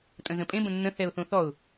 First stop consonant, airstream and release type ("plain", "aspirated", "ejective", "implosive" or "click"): ejective